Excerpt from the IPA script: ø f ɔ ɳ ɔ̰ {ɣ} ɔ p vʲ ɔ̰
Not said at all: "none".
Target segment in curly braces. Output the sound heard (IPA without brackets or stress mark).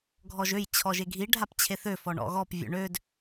ɣ